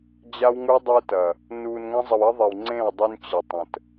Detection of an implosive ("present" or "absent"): absent